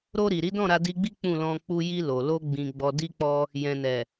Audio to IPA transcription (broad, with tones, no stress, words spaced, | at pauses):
ɾo˧ ɾi˨ɾi˨˦dɔ̃˦˨ ɾa˧di˧ɡ͡bi˦ k͡pũ˦˨lɔ̃˧ k͡pu˧ji˧lo˨lo˧ ɡ͡bĩ˨ɡ͡bɔ˨di˧ k͡pɔ˧ | jɛ̃˨nɛ˨